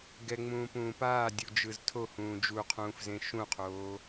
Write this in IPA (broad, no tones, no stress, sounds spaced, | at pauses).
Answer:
ɡ ɛ ŋ͡m ũː p ũː p aː dʲ u d͡ʒ ɯ z tʰ o h ũː d͡ʒ u qʰ ũː f z ẽ ʃ ũ qʰ oː